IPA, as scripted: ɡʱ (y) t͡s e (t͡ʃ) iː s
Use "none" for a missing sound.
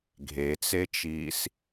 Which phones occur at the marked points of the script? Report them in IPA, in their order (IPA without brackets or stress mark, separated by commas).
e, t͡ʃ